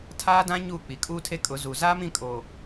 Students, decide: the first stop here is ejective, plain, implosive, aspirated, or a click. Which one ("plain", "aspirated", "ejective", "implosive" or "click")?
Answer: aspirated